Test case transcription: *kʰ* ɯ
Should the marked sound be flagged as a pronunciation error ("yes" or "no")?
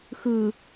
yes